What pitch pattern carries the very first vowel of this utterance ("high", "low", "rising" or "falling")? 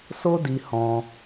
high